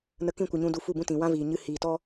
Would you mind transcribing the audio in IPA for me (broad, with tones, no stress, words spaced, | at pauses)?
nə˧kĩ˦˨kʷɨ˨ɲũ˧ du˧fu˦˨bũ˦tĩ˨ wã˦viː˨ ɲɨ˧ hiː˨tɔ˦